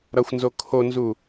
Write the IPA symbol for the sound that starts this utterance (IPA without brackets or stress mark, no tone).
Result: ɾ